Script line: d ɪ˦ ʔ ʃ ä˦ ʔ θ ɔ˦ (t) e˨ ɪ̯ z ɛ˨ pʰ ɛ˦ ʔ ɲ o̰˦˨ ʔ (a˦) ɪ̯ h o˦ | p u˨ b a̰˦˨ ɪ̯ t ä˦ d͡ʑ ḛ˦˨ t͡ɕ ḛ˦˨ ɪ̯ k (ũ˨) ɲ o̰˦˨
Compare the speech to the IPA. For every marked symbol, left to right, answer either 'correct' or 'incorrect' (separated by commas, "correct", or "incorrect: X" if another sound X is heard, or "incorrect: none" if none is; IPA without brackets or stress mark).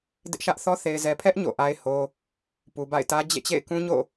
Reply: incorrect: θ, correct, incorrect: ũ˦